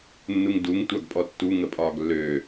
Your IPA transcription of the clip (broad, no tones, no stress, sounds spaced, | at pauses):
nː u ŋ d u ŋ tʷ a ɡ pʼ ɔ tː u ŋ ə pʼ ɒː ɡ lː ø